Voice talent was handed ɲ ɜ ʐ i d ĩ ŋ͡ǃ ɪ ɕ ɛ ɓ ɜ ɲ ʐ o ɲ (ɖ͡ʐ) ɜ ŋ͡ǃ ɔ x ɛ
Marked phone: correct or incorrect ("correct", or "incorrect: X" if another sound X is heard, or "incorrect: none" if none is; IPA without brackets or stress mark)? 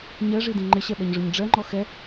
correct